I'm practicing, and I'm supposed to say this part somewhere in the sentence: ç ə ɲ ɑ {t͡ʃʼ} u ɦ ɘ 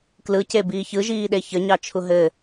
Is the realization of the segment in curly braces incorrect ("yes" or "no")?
yes